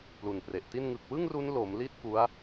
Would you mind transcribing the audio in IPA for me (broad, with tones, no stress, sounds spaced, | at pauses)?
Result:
p l u˨˩ n p r e˨˩ ʔ t i˥˩ n ŋ ɯ˨˩ k̚ w ɯ˥˩ ŋ r u˦˥ n l o˩˦ m l i˥˩ t̚ k u˦˥ a̯